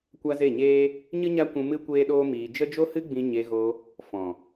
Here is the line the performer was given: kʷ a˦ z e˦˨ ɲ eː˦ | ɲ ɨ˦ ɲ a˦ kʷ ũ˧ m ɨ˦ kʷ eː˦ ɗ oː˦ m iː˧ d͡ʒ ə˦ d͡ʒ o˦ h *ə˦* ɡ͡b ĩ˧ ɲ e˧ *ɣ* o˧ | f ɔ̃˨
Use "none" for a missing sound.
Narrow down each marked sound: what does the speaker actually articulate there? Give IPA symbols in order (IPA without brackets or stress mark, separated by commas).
ɨ˦, ɣ